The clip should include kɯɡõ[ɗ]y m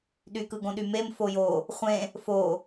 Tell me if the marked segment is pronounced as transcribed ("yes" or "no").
yes